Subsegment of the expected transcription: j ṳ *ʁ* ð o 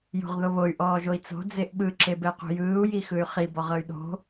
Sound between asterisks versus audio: correct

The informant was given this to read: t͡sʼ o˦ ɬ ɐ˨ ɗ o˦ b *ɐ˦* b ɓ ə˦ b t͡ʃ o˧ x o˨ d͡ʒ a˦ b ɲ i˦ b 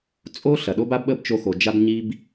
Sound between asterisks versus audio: incorrect: a˦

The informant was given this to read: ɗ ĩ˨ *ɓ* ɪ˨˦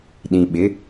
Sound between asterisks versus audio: correct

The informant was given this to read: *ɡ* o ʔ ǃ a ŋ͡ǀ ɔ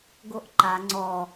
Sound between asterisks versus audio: correct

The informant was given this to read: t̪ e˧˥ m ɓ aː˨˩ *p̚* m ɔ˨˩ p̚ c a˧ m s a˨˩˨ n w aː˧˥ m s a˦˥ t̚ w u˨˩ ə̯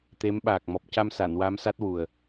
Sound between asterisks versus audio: incorrect: k̚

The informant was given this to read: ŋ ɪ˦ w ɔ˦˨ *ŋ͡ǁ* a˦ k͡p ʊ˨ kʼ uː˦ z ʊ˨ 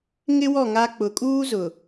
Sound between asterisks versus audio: incorrect: ŋ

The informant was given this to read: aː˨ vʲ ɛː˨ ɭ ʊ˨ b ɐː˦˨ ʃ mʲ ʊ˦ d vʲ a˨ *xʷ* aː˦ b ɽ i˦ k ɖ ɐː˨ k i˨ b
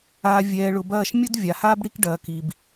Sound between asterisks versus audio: incorrect: h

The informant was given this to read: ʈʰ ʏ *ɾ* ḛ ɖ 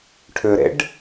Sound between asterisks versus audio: correct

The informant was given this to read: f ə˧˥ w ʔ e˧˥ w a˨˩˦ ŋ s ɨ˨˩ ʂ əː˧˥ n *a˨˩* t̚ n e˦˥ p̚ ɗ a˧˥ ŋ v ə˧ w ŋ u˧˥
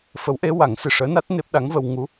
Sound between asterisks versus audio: incorrect: a˦˥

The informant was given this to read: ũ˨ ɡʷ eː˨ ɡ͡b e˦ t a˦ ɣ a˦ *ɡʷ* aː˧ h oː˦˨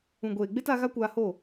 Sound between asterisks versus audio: incorrect: kʷ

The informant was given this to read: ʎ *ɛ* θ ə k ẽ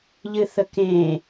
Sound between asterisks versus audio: incorrect: ɨ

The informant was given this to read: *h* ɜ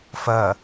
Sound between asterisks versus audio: incorrect: f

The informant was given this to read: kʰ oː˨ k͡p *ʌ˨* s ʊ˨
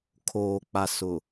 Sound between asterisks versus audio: incorrect: a˨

